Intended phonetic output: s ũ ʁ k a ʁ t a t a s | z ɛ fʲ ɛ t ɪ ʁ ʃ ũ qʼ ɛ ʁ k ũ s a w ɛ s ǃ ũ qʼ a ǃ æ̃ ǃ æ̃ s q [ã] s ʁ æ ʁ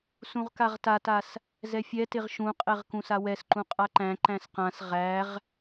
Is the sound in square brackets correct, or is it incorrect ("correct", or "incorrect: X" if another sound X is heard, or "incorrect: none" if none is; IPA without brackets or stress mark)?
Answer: correct